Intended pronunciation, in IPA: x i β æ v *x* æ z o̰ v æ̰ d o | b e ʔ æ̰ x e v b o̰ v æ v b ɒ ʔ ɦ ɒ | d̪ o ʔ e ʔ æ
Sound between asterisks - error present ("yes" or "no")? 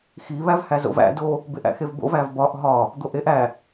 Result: yes